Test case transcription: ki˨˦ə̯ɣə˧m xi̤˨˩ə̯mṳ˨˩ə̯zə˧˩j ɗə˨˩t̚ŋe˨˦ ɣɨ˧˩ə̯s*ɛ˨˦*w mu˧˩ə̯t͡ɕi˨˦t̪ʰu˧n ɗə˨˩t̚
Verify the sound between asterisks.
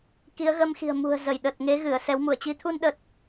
correct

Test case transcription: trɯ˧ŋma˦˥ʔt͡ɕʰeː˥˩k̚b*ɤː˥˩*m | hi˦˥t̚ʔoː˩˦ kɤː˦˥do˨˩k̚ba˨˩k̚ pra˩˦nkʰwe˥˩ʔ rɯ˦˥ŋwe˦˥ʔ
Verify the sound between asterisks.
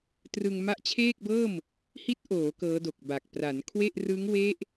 correct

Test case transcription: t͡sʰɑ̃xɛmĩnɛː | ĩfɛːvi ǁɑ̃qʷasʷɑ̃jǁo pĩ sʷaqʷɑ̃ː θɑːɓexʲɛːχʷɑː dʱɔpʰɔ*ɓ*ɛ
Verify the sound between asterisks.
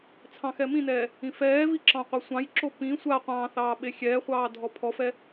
incorrect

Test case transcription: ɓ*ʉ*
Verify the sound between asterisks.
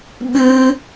correct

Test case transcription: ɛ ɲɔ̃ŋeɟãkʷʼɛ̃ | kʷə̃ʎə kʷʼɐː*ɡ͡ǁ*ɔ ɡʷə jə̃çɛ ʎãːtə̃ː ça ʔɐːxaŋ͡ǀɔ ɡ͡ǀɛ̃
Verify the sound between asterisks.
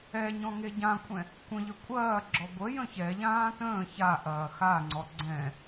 correct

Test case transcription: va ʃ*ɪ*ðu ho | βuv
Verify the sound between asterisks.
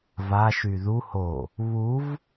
incorrect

